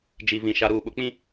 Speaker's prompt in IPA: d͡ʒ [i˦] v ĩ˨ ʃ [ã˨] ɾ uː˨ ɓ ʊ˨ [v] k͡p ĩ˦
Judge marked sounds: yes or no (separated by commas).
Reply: no, no, no